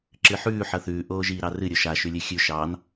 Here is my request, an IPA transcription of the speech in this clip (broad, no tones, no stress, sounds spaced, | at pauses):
ǁ ɨ ħ ʉː ħ ʌ θ ʉː ʔ oː ʒ iː ɾ ɑ r ɨ ɾʲ o ʃ a ʃ ʉ lʲ ɨ xʲ ʉ ʃ ɑ n